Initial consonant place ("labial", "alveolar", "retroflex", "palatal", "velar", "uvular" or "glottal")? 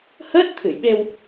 glottal